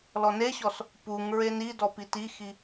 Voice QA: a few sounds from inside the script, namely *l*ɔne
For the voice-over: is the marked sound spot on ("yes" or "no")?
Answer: yes